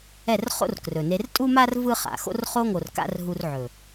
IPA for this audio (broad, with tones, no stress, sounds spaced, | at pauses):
ɛ˦˨ r χ o̰˦ r k r ɵ˨ n e˧ r tʼ u˦ m a˦ r v ɯ˦ χ a̰˨ x o̰˧ r χ o˧ ŋ o˨ r k a̰˦ r ɦ u˧ r ʕ ɵ˨